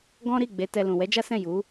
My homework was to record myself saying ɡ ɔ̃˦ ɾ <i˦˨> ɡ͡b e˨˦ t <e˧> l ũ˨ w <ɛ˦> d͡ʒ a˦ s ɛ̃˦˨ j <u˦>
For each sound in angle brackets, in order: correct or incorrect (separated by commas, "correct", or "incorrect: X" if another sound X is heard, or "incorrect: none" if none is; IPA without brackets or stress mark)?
correct, incorrect: ɛ˧, incorrect: ɛ˨˦, incorrect: u˨˦